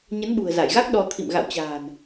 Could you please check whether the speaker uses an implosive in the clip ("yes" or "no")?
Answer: yes